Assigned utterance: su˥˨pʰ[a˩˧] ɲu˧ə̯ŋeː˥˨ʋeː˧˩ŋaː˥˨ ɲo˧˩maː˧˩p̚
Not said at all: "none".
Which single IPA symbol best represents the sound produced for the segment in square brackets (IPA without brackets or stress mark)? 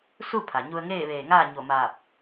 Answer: a˩